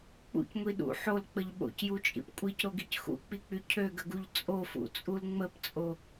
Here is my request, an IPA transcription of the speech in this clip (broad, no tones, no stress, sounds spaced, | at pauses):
k͡p ṵ c ŋʷ i ɗ ṵ ħ o l k͡p ə ʎ ɓ o̰ c j u t͡ʃʼ ḭ p kʷʼ i c ɾ o ɡ i c x ṵ k͡p i k͡p y cʰ ø ɡ ə ɡ u ʎ t͡sʼ o f ṵ t͡sʼ u l ŋ͡m ə p t͡sʼ o